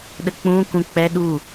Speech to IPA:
ɗ ə k͡p ũ k ũ k͡p ɛ ɗ u

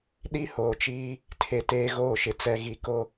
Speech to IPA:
ɗ i˦ h oː˨ t͡ʃ iː˦ | tʰ e˨ t eː˦ ɣ oː˦˨ ʃ ɪ˨ t͡s ɛ˨ ɣ i˨ k o˦

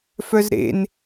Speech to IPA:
f œ z ɾ ḛ n

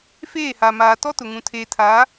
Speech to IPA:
f eː˦˨ h a˨ m aː˨ t ɔ˦ t ʊ˨ ŋ ũ˨ tʰ eː˨ tʰ aː˨˦

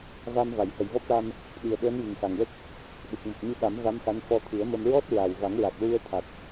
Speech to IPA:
v a˧ m v a˨˩˨ j h ə˨˩˨ j v ɔ˦˥ p̚ ʈ a˧ m | ɗ i˨˩ ə̯ ɓ əː˧˥ n j i˨˩ ŋ x a˨˩ ŋ w ə˦˥ k̚ | ɗ ɨ˨˩ k̚ m o˨˩ p̚ ɲ ɨ˧ ɓ a˨˩˦ m v a˧˥ m x a˧˥ n f ɔ˧ t̪ʰ ɨ˨˩˦ ə̯ m ə˧ m ɹ ɔ˦˥ t̚ ɹ a˨˩ w v a˨˩˦ ŋ ɹ a˨˩ k̚ ɹ u˧ ə̯ t̪ʰ a˨˩ t̚

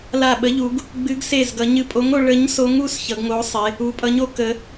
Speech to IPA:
l a˧˩ ɓ ə˨˥ ʎ u˩˧ ɡ | ɡ͡b ɨ˨˥ ɡ s e˧˩ z ɡ ʌ˩˧ ɲ ɨ˧˩ pʼ o˨˥ ŋ o˩˧ ɭ ə˨˥ ɲ s o˨˥ ŋ u˩˧ s ç ʌ˩˧ ɡ ŋ o˨˥ sˤ e˩˧ | u˩˧ pʼ ʌ˨˥ ɲ o˩˧ k ə˩˧

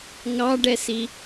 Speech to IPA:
ŋ ɑ ɖ ɛ s i

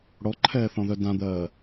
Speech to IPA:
ɽ ɔ ǃʰ ɛː θ ɔ̃ ð œ d ã d̪ ɜː

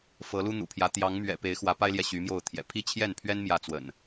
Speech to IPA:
f ɤ˨˦ l u˦ n̪ ṵ˨˩ pʰ j ä˨˦ t̪ j ɑ˨˦ ŋ m ɥ ɛ̰˨˩ p e˨˦ ɪ̯ x w ä˨˦ p a˦ ɪ̯ l j ɛ˨ ɕ y˨˦ m j o˥˨ ʊ̯ t̪ʰ j ɛ̰˨˩ pʰ i˥˨ t͡ɕʰ j ɛ˥˨ n pʰ ɥ ɛ˦ n m j ä˥˨ t͡s w ə̰˨˩ n

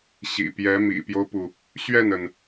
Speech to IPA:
ɕ ḭ˨˩ p j ɛ˧˥ m ḭ˨˩ p j o˦ ʊ̯ p u˩ | ɕ ɥ ɛ˥˩ n ə˩ n

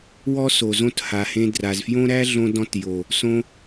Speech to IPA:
w ɔ˦ s o˨ z õ˦˨ t h a˨ h ẽ˧ d r a˨ z f j õ˦ ɾ æ˦ ɮ õ˧ d ɔ̃˧ t j o˨ | s õ˦

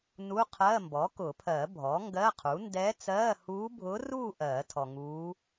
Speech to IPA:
n u˧˥˧ qʰ ɜː˧˥˧ m b ɔ˩˥ k ʊ˨˩˦ pʰ ɜ˨˩˦ bʱ ɔ˩˥ ŋ ɡ ɜ˧˥˧ qʰ u˩˥ n d ɛː˧˥ t͡s ɜː˧˥˧ h uː˧˥ bʱ ʊː˧˥ r uː˥˧ ʔ ɜː˨˩˦ tʰ ɔ˨ ŋ uː˧˥

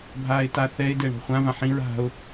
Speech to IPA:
bʱ aː ɪ̯ t a θ ɛ ɪ̯ d ɛ ɳ ɔ̤ χʷ ã v ã ħ ĩ ɹ a̤ ʊ̯

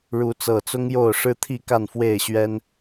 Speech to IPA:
ɻ u˨˦ t͡s ɤ˨˩ t͡s ʊ˦ ŋ j o˥˨ ʊ̯ ʂ ɻ̩˦ t̪ʰ i˥˨ k a˥˨ n f w e˥˨ ɪ̯ ɕ ɥ ɛ˦ n

